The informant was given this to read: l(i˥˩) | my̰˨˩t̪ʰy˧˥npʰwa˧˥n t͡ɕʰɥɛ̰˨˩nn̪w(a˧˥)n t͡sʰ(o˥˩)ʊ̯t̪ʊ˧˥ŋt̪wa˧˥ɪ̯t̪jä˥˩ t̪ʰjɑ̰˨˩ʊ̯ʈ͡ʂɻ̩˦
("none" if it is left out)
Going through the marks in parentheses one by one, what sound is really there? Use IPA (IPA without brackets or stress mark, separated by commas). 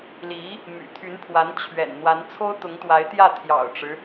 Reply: i˧˥, a˧˥, o˥